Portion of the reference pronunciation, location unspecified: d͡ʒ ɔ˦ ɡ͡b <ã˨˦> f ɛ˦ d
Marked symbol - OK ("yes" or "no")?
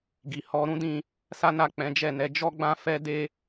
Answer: no